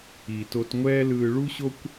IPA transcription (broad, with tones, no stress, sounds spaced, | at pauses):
iː˨ t o˧ t ŋʷ ɛː˦ l ɯː˧ ɭ u˦ ɕ o˦ kʷ